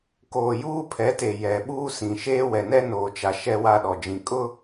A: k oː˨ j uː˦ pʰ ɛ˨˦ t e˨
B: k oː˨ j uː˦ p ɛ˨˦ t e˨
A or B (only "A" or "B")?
A